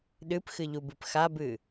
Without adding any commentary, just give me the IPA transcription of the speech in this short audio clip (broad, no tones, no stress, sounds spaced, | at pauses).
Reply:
ɗ ɨ p x ɨ ʎ u b ɨ p x a b ɨ